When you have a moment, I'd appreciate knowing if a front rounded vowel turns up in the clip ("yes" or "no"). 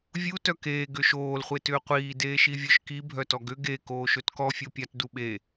yes